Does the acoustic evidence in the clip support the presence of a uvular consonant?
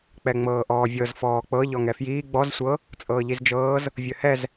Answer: no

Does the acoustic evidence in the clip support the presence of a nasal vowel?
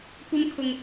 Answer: no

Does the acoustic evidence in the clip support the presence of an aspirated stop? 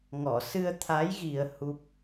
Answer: yes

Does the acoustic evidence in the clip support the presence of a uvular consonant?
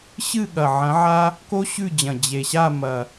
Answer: no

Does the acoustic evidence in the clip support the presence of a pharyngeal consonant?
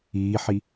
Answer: yes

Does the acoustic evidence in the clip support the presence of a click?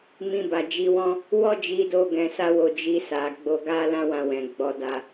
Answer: no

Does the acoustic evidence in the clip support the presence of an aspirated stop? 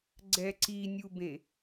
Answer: no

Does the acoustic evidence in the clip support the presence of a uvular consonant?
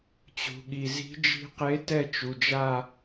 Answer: yes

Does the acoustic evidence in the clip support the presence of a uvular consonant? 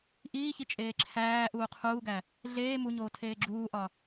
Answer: yes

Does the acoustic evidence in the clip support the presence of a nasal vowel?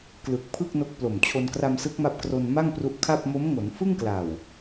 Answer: no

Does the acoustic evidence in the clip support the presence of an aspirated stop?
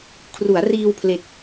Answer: yes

